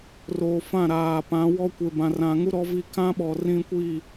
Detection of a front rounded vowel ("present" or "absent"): absent